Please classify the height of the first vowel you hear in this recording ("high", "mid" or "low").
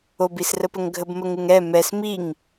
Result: mid